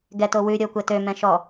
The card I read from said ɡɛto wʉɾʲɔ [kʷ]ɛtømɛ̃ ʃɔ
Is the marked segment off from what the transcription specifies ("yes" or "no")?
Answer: no